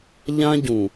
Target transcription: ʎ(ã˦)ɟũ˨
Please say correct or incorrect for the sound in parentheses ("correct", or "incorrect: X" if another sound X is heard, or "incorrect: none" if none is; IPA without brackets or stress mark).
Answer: correct